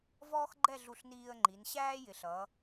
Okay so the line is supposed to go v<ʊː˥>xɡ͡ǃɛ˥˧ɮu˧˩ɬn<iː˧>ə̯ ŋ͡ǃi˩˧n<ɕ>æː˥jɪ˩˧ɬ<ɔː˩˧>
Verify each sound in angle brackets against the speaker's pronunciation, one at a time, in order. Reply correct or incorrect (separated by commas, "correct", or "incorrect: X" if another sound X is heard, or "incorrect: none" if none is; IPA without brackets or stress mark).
incorrect: ɔː˥, correct, correct, incorrect: ʌː˩˧